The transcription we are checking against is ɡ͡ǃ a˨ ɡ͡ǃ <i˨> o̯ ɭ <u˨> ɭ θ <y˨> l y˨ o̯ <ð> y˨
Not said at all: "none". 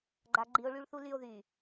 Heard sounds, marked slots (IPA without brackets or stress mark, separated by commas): i˨, y˨, u˨, ð